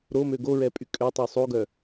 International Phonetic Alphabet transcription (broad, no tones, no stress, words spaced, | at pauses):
ɾomø ɡoɹɛpʼy kʼøtˤu sˤoɡœ